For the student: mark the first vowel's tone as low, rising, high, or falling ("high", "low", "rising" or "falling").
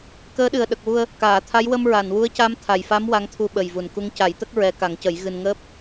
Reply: rising